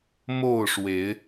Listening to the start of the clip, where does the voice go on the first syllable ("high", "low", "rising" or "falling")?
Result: falling